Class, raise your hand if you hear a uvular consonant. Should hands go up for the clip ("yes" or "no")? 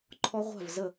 yes